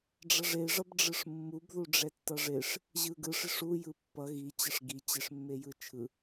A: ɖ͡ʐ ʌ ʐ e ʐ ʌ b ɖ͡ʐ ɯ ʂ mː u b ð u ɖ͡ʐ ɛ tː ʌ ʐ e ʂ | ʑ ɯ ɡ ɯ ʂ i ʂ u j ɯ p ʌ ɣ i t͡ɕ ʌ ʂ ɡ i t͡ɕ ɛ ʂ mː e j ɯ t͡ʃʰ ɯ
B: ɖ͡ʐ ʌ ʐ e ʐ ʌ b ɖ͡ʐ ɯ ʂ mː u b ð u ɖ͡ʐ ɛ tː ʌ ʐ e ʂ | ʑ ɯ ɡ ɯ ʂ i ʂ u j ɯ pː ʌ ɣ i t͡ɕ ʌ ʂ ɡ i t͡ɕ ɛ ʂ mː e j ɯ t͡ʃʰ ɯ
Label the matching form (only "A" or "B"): B